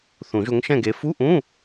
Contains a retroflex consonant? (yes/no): no